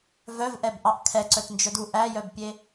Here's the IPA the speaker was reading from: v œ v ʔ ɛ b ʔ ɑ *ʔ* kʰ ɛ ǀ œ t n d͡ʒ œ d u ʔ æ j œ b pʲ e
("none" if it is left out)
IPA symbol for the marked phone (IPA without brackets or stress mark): ʔ